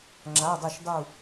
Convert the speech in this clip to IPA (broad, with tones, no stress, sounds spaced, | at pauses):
ŋ͡ǁ a˩˧˩ dˤ ɵ˧˩ ʃ dˤ u˧˩